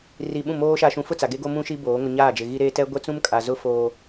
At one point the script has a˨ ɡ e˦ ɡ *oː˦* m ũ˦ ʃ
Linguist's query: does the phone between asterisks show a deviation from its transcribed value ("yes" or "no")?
yes